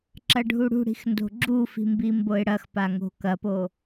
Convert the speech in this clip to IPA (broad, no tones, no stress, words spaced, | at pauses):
ǁɐɖʱuɽṳɽi̤x ndo̤ɡ͡ǁufi̤ mbimboɪ̯ɽɐxpa ŋo̤kɐpo